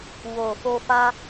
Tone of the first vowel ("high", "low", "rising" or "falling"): low